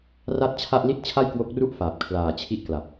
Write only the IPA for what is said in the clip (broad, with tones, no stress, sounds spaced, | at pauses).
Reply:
r a˥˩ t̚ t͡ɕʰ a˥˩ ʔ l i˥˩ t̚ t͡ɕʰ a˥˩ j k w o˦˥ k̚ r u˥˩ ʔ f aː˨˩ p̚ kʰ l aː˨˩ t͡ɕʰ i˥˩ ʔ k l a˨˩ p̚